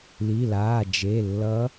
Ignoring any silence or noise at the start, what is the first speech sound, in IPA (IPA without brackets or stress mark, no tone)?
l